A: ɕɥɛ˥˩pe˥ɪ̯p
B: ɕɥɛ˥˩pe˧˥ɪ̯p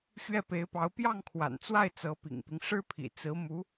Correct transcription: B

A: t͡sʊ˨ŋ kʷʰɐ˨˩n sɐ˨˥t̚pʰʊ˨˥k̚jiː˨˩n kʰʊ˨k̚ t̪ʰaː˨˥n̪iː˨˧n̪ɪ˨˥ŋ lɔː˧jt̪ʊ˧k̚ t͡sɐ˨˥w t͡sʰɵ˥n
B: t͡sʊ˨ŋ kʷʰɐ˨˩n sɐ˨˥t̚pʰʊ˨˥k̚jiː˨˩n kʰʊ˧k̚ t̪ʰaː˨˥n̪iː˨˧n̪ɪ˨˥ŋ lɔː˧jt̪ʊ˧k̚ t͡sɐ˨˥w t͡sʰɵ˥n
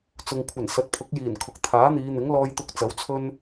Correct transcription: A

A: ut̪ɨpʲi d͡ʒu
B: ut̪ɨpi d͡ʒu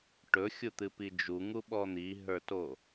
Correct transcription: B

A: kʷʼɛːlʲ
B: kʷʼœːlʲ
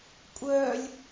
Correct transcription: B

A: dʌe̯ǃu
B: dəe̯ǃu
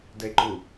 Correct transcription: B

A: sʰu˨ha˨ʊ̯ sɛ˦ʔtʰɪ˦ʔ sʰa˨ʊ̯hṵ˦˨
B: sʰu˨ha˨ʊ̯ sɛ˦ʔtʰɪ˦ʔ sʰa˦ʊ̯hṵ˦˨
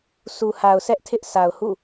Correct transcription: A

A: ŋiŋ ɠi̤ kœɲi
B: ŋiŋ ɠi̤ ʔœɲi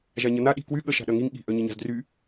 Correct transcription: B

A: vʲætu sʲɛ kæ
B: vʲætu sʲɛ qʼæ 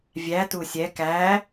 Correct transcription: A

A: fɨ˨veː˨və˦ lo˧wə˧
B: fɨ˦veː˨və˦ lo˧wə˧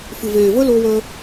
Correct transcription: A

